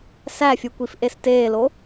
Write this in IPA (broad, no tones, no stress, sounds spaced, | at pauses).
s æ fʲ u kʷ i f ʔ e s t eː l o